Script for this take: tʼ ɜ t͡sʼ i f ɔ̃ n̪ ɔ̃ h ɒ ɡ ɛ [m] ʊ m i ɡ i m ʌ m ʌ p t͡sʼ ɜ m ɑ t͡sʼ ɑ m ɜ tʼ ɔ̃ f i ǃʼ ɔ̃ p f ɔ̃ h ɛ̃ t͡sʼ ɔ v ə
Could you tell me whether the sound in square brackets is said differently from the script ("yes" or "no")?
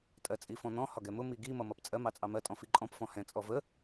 no